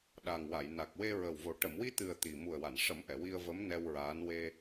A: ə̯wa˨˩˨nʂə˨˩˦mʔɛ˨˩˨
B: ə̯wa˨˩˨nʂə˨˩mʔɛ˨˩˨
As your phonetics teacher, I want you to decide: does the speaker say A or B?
A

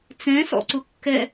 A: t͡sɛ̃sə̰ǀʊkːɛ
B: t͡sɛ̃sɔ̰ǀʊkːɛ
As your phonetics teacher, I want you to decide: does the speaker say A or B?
B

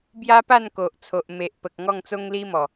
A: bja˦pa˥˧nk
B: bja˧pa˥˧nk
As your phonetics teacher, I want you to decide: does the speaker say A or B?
A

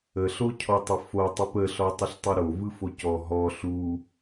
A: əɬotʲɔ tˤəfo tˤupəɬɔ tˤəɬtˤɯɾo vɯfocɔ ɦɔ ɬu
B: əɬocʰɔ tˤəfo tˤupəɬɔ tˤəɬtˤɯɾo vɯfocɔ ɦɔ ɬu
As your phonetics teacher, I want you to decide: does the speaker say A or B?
B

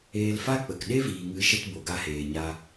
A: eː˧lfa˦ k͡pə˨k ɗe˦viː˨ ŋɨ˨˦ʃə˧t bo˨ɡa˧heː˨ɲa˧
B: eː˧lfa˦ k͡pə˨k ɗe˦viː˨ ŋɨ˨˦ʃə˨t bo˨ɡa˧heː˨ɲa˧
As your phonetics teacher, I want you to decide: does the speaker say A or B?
A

